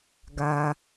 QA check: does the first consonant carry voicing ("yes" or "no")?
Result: yes